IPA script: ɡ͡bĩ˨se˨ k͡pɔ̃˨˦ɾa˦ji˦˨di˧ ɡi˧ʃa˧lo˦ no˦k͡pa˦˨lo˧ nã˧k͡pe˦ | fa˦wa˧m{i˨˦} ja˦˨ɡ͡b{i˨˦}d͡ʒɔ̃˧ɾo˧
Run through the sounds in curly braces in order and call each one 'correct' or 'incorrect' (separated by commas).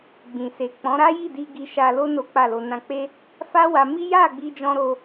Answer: incorrect, incorrect